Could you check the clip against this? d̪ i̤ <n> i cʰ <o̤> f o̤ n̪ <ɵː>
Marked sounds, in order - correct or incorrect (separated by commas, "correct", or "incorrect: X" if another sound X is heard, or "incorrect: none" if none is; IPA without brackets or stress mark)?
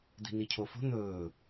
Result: correct, incorrect: o, correct